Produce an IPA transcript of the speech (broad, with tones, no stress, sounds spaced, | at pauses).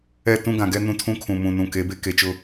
ɛ˦˨ t ũ˦ ɡ ã˨ ɡ ɛ˦ n ũ˦ tʰ ũ˦ kʰ ũ˨ m ũ˨ n ũ˨ k e˨˦ b e˦ k e˨ t͡ʃ ʊ˦